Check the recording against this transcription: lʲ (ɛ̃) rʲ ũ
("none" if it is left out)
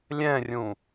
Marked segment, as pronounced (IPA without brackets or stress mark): ɛ̃